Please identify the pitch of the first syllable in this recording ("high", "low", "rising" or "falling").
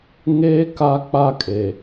high